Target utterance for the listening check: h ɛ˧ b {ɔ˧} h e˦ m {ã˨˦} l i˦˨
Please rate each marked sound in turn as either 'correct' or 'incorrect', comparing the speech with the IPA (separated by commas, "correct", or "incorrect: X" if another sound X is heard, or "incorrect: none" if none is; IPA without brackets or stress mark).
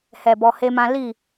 correct, incorrect: ã˦